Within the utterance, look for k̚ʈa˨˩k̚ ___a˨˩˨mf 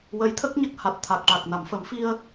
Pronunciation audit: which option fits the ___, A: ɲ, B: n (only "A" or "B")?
B